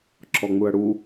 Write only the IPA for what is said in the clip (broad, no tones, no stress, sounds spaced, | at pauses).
ǁ ɔ ŋ͡m u ɐ̯ ɽ u